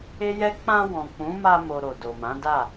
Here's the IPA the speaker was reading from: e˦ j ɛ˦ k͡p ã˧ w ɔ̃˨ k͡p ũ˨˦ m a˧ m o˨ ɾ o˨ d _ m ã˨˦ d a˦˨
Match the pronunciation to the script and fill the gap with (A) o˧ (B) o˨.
B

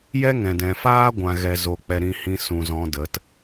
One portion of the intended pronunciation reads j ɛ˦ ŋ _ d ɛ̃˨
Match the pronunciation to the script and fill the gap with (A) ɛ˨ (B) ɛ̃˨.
B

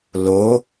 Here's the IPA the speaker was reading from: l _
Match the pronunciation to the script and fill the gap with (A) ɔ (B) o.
B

